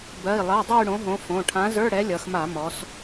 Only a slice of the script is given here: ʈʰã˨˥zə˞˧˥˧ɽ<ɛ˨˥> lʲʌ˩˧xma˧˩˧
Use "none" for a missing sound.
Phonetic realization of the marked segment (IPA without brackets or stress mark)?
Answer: ɛ˨˥